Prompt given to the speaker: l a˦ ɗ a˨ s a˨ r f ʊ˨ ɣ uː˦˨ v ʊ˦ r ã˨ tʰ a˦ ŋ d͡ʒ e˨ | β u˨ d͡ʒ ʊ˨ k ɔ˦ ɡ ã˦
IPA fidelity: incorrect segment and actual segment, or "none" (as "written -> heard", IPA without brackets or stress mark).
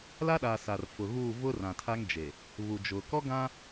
none